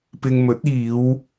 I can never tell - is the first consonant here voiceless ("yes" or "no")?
yes